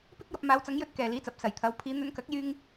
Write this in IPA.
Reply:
pɪ˥k̚jɐ˧p̚ maː˨˧wt͡sɐ˨˧ŋ jɵ˧t̚ kɛː˨liː˨˥t͡sɐ˨˥p̚ sɐ˨˩jt̪ʰɐ˨˧w pʰiː˨˧n̪ɵ˧nkɐ˨˥k̚ jyː˧ŋ

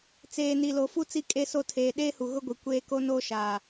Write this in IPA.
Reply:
t͡seː˨ni˨lo˨ fu˦ t͡si˨kʼe˨so˨ tʰeː˨ɗeː˦hu˨ ɣʊ˦ɡʷi˨ kʷeː˦ ko˦noː˦ʃaː˨

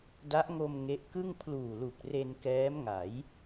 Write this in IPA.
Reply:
da˦˥ʔŋo˧m ŋe˦˥ʔkɯ˥˩ŋ pʰluː˨˩lu˨˩k̚re˧n kɛː˦˥mŋa˩˦j

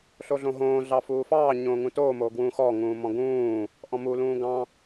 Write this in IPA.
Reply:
ɬoɮõɦõː ɮɑfuːfɑː ɲõːŋũtoː moːɡwũːxɔː ŋũːmɔ̃ɡũː | ʔɔ̃mu lũːɡɑ̃

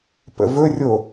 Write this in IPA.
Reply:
pə̰vɵrʲo

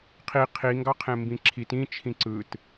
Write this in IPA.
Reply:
qʰi qʰi ŋɡɑqʰẽmbĩǁʰit ĩ t͡ʃʰĩǀɯt

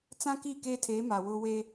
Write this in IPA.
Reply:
t͡sã˦ki˦˨ keː˦tʰeː˨˦ ma˨wʊ˦ we˦

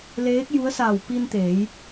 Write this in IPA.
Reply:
leː˧˥k̚ju˧˥ə̯saː˧˩w pi˧nt̪eː˩˧j

